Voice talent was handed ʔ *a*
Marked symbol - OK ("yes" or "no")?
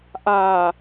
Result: yes